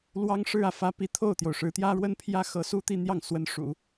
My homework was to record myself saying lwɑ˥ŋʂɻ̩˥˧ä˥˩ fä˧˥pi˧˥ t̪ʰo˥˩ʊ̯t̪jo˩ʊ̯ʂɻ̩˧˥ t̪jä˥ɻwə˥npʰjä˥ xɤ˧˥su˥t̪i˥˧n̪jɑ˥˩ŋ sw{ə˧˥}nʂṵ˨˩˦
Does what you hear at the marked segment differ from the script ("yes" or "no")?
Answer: no